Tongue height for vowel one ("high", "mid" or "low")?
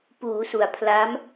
high